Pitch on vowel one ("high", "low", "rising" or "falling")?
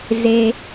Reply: low